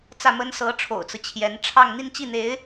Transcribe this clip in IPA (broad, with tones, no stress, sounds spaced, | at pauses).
t͡s ä˥˩ m ə˥ n s ɤ˧˥ ʈ͡ʂʰ o̰˨˩ ʊ̯ t͡s ɹ̩˦ t͡ɕʰ j ɛ˧˥ n ʈ͡ʂʰ ɑ˥˧ ŋ n̪ i˥˧ n t͡ɕ i˥˩ n̪ e˧˥ ɪ̯